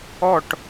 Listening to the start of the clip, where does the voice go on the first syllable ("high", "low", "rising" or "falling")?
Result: falling